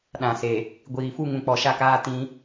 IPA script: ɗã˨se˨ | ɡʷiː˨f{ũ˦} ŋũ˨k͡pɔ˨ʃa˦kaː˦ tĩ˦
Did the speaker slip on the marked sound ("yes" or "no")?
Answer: yes